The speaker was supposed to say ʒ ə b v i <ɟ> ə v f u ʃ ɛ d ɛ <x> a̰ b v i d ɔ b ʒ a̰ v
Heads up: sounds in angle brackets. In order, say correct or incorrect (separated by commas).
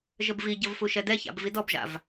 correct, incorrect